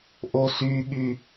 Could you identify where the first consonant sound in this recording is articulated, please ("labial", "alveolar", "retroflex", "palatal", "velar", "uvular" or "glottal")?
glottal